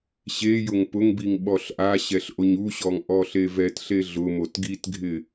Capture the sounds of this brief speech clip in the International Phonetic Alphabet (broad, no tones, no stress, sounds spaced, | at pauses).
ɕ e j ʊ ŋ p ʊ ŋ b i ŋ ɓ ɔ ɬ ʔ a ɕ ɛ ɬ ʔ o ɲ u ɕ ɔ ŋ ʔ ɔ ɬ e v ɛ t ɬ e ɮ ʊ m o t ɡ i t ɡʱ ɪ